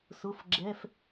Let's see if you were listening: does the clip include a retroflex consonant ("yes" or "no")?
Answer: no